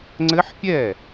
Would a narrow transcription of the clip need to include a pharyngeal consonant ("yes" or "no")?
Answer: yes